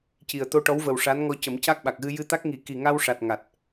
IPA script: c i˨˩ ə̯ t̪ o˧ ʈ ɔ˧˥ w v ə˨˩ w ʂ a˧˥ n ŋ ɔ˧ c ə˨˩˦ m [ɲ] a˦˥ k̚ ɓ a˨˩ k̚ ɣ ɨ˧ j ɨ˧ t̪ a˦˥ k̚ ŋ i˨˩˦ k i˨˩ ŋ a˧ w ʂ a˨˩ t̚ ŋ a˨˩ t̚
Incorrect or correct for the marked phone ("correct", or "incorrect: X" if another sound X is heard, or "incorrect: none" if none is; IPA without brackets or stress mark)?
incorrect: c